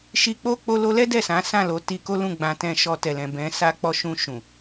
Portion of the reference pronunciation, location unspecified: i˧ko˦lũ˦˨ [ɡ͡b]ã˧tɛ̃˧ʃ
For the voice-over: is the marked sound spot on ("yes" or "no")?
yes